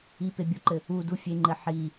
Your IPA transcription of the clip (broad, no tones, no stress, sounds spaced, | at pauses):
i p e bʲ o ǃ ɘ | u d u fʲ e ŋ͡ǃ ɘ ħ i